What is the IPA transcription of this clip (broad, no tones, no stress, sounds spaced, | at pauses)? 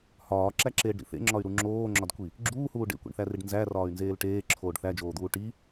h ɒː ǁ æ ǁ eː ɖ ɾ ḭ θ ḛ ŋ͡ǁ ɒ y̯ ɾ u ŋ͡ǁ oː ŋ͡ǁ ɒ d kʷ i | ɡ͡ǁ uː h uː ɖ ḛ kʷ ḛ ɳ θ æ r i ɖ n z æ r ɒː y̯ n z eː l ʈ eː ǁʰ oː ɖ θ æ d͡ʒ oː d̪ uː ʈ i